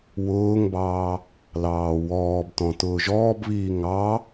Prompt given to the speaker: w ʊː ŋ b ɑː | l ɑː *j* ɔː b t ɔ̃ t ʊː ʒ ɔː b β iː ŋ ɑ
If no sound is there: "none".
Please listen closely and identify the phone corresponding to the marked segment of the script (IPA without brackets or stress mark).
w